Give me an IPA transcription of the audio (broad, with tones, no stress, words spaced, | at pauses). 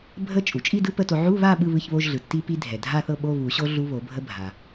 bʱə˦˥t͡ʃʼu˩ t͡ʃʼi˥˧dɯ˦˥ pə˧˥˧to˧ ʕu˧˥˧βa˥˧ ɓɯ˧˥˧βɯ˧˥˧çβo˧˥˧ʒɮɯ˩ tːi˦˥pi˦˥ dʱɛ˩dʱa˥˧θɤ˥˧ɓo˧˥˧ βu˨˩˦ɕo˦˥ ɮu˦˥βo˨˩˦bʱə˦˥ bʱa˩